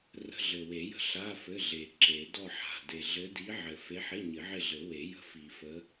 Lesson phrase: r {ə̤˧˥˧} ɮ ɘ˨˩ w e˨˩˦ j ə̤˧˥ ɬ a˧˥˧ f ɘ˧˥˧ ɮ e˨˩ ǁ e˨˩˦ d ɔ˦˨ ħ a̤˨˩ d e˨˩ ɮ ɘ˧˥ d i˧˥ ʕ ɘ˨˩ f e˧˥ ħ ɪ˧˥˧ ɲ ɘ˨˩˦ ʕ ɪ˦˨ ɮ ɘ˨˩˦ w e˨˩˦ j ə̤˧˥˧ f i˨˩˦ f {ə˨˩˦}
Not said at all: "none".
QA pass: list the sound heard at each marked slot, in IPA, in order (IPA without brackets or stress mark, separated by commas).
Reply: ə̤˧˥˧, ə˧˥